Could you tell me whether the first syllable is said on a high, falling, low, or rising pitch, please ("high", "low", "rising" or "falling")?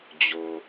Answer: low